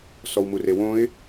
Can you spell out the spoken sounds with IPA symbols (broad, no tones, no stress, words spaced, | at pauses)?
sɔwmurewõɪ̯